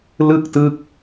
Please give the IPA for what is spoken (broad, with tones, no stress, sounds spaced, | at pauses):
l ɯ˥˩ k̚ t ɯ˦˥ k̚